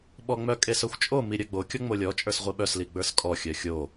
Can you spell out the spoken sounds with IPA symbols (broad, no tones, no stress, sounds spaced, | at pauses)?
ɓ ɔ ŋ͡m œ kʼ e s œ xʷ t͡ʃʼ o m i ɾʲ œ ɡ͡b o kʲ ɔ ŋ͡m o lʲ ɔ t͡ʃʼ ə˞ s ʁʷ i ɓ œ s l i ɡ͡b ə˞ s kʼ ɔ xʲ œ xʲ o